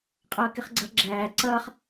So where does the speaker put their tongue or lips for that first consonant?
uvula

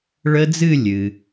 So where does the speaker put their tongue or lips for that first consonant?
retroflex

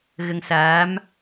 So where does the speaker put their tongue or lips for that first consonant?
velum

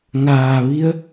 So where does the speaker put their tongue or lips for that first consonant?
velum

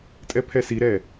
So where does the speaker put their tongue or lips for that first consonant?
tongue tip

